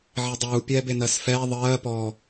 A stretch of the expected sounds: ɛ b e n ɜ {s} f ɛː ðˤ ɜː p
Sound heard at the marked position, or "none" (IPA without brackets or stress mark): s